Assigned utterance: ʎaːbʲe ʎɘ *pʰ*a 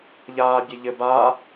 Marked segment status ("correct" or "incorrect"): incorrect